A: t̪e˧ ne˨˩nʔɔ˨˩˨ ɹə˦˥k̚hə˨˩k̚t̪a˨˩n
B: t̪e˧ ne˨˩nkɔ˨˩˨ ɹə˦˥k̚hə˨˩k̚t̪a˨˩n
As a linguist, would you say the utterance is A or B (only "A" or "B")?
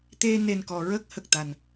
B